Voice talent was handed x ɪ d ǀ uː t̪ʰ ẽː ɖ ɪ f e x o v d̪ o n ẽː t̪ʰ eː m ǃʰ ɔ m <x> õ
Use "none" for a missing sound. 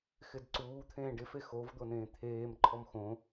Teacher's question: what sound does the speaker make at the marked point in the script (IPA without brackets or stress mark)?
x